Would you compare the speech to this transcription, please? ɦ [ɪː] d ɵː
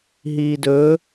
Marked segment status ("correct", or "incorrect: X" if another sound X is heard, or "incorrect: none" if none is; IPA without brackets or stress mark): incorrect: iː